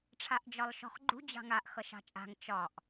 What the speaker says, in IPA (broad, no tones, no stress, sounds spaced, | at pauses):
ʈ͡ʂʰ a ʔ d͡ʒ ɒ lˠ ʃ ɔ̤ χ ɡ͡ǃ ṳ d͡ʑ ɑ̤ ŋ a ʔ x ʌ ʃ ɑ̤ t͡ʃʼ a̤ ŋ t͡ʃ ɒ ʔ